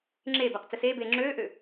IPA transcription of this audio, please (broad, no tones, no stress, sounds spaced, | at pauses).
ŋ͡ǁ eː b æ q t͡s ə s eː b eː ŋ͡ǁ øː ʔ ø